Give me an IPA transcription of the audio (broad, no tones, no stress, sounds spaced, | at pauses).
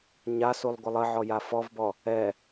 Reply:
ɲ a s u lˠ ɡʷ ə lˠ ə ʕ ɔ j a f ɔ v b ɔ | ɛ